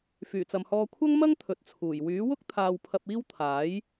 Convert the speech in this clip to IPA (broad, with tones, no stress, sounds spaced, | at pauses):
f yː˨˩ t͡s ɐ˨ m h ɔː˧ kʷʰ ɐ˥ ŋ m ɐ˥ ŋ t̪ʰ ɵ˨ t̚ t͡sʰ uː˨˩ j w yː˨˥ w ʊ˥ k̚ t̪ʰ aː˧ w pʰ ɐ˧ p̚ iː˥ w t̪ʰ aː˨˥ j